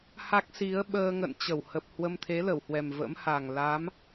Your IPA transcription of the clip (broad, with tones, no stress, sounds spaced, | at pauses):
h a˦˥ k̚ s i˨˦ ə̯ ɓ əː˧ ŋ ə̰˧˨ n t͡ɕ ə˧˩ w h ə˨˩ p̚ h w ə˧ m t̪ʰ e˨˦ l ə˧˩ w h w ɛ˨˩ m v ə̰˧˥ m h a˨˩ ŋ l a˨˦ m